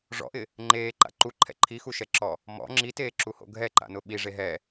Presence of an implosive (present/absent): present